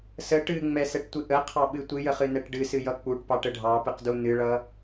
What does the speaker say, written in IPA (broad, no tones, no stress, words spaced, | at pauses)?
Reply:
sə ʈɨŋ͡mɛsɛʈtʷɨ ʔəqʰɑɓɨ tʷɨjəχɨnɛʈ ɖɨsɨjʌ k͡puʈpɑʈə ɖʱɑpɨqdu nɨɭʌ